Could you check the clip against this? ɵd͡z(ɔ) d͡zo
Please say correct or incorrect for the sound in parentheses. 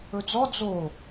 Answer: correct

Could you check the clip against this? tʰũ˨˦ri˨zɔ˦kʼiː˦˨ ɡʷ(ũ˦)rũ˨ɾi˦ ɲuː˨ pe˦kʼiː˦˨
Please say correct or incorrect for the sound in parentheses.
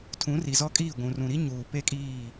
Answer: incorrect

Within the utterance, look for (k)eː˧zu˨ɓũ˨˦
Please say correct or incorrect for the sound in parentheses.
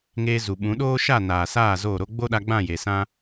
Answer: incorrect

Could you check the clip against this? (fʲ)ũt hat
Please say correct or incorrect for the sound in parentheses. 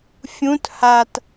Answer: correct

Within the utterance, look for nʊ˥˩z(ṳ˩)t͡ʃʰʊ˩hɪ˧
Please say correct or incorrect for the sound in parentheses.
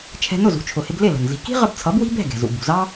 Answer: incorrect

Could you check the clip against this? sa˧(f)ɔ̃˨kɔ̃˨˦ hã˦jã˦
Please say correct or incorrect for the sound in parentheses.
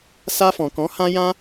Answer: correct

